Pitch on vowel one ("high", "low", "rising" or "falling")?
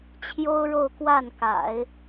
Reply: high